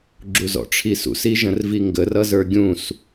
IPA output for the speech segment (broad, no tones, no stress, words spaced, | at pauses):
ɡ͡ǁuzɔ̰ʈ͡ʂʰisṵs iʒə̃rviŋɡər ʌzə˞ɡʲũs